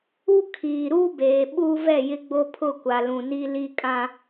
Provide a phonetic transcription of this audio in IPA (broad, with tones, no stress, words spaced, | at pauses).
u˦ kʰiː˨ɾu˦beː˨ ɓuː˦vɛ˦˨jɪ˦ ɡ͡bo˦pʰʊ˦˨kʷa˨ lũ˨ni˦ li˦ kʼã˦